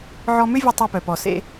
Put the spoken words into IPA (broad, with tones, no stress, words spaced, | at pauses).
ʕɔ˧mʏ˥vʲə˧ tˤœ˧pœ˩pɔ˩sḛ˧